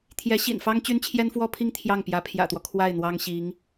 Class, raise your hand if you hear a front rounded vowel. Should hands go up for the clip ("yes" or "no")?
yes